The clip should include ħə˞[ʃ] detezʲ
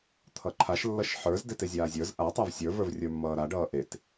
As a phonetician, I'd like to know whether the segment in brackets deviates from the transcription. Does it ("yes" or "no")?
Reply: yes